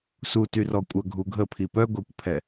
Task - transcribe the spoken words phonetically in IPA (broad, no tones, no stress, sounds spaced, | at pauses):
s u t y r ɔ kʷʼ œ ɡʱ u ɡʱ ə pʰ i p œ ɡʷ ɛ kʷ pʰ ɛ